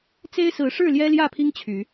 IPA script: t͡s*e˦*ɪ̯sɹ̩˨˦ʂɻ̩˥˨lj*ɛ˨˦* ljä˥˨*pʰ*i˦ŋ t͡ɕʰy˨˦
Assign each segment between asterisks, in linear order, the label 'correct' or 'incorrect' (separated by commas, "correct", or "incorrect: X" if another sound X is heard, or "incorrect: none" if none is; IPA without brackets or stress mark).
correct, incorrect: ɛ˦, correct